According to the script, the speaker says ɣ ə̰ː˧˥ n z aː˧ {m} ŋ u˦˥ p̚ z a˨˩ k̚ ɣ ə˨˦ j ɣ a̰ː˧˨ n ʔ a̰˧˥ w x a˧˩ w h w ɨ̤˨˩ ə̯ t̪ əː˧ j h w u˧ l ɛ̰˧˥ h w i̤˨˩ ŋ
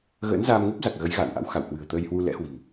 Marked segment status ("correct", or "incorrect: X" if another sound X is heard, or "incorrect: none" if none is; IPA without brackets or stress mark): correct